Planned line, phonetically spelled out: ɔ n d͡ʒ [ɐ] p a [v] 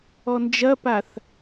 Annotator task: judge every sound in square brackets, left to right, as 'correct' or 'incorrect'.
correct, incorrect: θ

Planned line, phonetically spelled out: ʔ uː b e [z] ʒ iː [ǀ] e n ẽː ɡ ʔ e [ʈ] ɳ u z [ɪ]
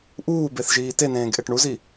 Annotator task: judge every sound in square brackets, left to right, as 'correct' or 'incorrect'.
incorrect: θ, incorrect: t, correct, incorrect: i

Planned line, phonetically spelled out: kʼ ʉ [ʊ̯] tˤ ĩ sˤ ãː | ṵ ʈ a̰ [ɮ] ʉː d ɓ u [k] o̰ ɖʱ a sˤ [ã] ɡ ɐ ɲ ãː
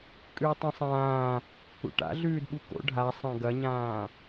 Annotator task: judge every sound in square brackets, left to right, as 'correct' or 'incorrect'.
incorrect: ɪ̯, correct, correct, correct

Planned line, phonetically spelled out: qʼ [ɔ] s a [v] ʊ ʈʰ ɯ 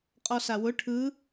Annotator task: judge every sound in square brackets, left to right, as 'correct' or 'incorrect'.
correct, incorrect: w

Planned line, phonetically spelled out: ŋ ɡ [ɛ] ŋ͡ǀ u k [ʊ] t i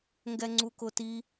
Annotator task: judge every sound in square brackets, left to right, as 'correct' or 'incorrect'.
correct, correct

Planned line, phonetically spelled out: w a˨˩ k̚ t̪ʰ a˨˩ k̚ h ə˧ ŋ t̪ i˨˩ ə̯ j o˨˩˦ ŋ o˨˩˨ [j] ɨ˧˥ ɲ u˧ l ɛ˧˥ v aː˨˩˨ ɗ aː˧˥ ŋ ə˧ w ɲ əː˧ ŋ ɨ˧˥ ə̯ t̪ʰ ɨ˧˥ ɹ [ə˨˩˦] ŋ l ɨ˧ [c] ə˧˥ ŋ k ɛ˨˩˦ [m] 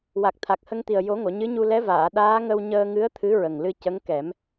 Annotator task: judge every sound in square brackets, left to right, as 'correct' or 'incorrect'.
incorrect: ɲ, incorrect: ə˨˩, correct, correct

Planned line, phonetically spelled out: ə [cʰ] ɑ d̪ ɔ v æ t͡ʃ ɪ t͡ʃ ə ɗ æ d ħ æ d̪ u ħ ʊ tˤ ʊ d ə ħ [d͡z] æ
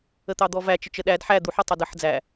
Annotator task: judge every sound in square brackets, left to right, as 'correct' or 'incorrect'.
incorrect: t̪, correct

